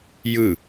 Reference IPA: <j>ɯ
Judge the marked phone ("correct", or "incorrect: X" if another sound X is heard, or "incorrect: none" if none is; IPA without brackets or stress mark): correct